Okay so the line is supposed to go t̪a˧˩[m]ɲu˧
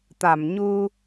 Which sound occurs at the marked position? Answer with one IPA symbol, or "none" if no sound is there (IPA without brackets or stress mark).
m